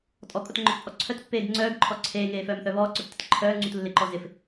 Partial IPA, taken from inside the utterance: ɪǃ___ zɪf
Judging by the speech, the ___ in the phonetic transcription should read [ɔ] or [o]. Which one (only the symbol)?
ɔ